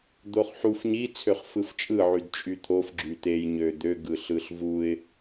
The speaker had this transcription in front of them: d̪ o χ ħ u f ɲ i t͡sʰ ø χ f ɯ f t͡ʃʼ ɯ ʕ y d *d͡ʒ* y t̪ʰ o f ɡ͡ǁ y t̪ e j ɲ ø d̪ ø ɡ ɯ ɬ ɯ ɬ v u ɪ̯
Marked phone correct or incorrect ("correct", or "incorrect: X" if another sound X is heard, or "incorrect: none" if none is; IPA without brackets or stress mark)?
incorrect: t͡ʃʼ